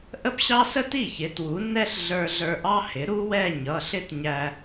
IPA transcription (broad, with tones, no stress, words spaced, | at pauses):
ʔə˥pɕɑ˥ sə˥ti˥˩çɪ˩˥ twu˩˥nːɛ˥ɬ ɮə˞˧ ɮə˞˧ʔɑ˥hɪ˩˥ ɾu˥wɛ˥˧ ɲʌ˩˧˩ɬɪ˥˧tɲæ˧